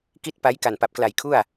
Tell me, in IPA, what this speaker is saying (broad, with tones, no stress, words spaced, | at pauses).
ki˥˩t̚pa˦˥j ka˨˩npa˨˩p̚kla˨˩jkʰu˥˩a̯